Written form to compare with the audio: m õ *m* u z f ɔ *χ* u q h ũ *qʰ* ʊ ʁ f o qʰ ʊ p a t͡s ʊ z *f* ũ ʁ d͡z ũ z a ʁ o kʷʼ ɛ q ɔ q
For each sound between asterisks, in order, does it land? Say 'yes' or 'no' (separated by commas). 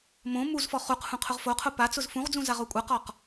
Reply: yes, yes, yes, yes